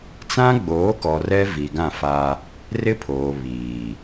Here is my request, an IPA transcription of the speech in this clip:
t͡s ã˦ ɡ͡b oː˨˦ k ɔ˨ r ɛ˦ v i˨ ɡ ã˦˨ f a˦ | r ɪ˦ pʰ oː˨ β iː˨

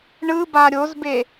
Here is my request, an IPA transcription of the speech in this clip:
ɳ ɯ b a ɾʲ o z b e

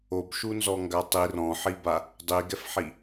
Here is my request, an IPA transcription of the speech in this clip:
o b ʃ u n z ɔ ŋ ɡ a tˤ i r ɔ̃ ħ i b a | dˤ i ɡ ɛ f ħ i

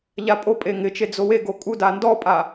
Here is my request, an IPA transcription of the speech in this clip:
ʎ a pʼ o pʼ e ŋ ɪ t͡ʃ e d͡z o w e ɡ o kʼ u d a n d ɔ pʼ a

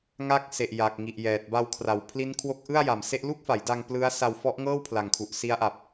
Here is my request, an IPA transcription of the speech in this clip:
ŋ a˦˥ k̚ s e˨˩ ʔ j a˨˩ k̚ ŋ i˨˩ ʔ j ɛː˨˩ t̚ b a˧ w kʰ r a˨˩ w pʰ l i˦˥ n kʰ w o˦˥ k̚ ʔ ɯ˥˩ a̯ j a˨˩ m s e˥˩ ʔ l u˥˩ k̚ f a˩˦ j d a˧ ŋ p l ɯ˦˥ a̯ s a˧ w f ɔ˦˥ ʔ ŋ ɤː˥˩ w pʰ l a˨˩ ŋ kʰ u˨˩ ʔ s i˦˥ a̯ ʔ a˨˩ p̚

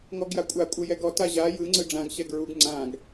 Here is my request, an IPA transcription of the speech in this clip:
ŋ ɔ ɡ j a kʷʼ a kʷʼ ɯ j ɛ ɡ ɔ t a ʑ a j ɯ ŋ͡ǀ ɯ ɖ͡ʐ ã ɡ ɕ ɛ ɡ ɹ u ɡ ŋ͡ǀ ã ɡ

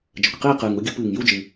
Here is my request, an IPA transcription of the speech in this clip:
d͡ʒ ə˨˩ kʷ q iː˥˨ q ɨː˨˩ ŋ u˥˨ ɡʲ u˥˨ p ɨː˨˩ ŋ j u˥˨ d͡ʒ ɨ˨˩

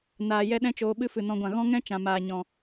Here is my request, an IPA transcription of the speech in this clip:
n aː˨ j ɛ˦ ɗ ɛ̃˦ t͡ʃ oː˧ ɓ ɨ˦ f ɨ˨ n ɔ̃˧ ɡʷ ã˨ ɣ ɔ̃˦ ŋ ɛ̃˦ t͡ʃ ã˨ m aː˨ ɲ ɔ̃˨

